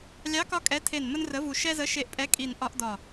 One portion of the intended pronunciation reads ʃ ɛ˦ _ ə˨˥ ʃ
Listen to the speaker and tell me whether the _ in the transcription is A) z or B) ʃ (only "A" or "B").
A